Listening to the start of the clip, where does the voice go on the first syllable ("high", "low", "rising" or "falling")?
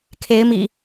rising